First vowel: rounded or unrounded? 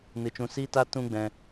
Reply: unrounded